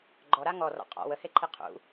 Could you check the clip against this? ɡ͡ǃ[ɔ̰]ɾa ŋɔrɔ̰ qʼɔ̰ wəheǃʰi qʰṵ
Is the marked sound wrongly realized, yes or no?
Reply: yes